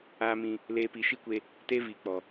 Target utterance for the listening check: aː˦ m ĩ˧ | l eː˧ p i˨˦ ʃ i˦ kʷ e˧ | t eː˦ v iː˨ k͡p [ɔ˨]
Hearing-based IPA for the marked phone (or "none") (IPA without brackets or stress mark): ɔ˨